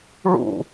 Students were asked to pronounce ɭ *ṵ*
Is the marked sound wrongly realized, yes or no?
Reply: no